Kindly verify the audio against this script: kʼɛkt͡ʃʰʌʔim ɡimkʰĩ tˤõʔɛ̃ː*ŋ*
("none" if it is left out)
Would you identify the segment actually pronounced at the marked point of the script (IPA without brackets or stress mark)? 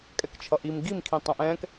k